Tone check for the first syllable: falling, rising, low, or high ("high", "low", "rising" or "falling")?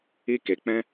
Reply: high